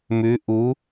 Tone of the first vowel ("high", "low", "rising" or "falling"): rising